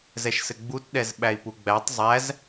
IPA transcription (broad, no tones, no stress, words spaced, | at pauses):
zɛʃsɘɡ͡butɗɛz ɓæi̯puɡ͡bætˤ zˤæz